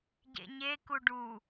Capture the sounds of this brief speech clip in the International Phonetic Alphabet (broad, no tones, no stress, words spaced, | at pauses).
ɟḛɲe kuɖu